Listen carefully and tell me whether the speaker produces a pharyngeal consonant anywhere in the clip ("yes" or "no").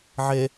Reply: yes